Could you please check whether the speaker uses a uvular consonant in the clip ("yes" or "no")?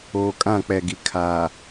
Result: no